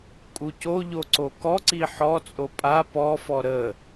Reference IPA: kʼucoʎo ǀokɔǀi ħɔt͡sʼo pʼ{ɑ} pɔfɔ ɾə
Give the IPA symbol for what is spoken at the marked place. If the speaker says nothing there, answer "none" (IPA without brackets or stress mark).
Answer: a